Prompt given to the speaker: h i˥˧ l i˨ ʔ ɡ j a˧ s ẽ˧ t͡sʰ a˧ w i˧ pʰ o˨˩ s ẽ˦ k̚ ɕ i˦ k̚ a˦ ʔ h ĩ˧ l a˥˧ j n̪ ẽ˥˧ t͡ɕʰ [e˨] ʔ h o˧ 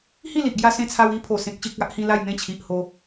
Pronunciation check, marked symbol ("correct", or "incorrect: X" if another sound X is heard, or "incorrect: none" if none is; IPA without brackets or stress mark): incorrect: i˨